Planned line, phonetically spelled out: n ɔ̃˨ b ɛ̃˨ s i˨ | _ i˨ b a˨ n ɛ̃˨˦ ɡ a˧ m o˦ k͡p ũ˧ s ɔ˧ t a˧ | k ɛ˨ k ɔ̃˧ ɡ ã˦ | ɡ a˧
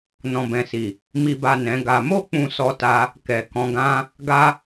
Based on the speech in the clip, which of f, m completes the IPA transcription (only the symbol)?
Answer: m